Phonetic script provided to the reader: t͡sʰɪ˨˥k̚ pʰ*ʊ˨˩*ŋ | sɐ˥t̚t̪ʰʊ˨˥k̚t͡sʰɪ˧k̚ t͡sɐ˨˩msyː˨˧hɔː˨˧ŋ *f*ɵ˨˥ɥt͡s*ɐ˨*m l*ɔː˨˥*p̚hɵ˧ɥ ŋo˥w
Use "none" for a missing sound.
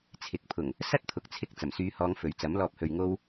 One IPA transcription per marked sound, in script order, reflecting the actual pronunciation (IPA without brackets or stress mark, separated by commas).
ʊ˨˩, f, ɐ˨˥, ɔː˧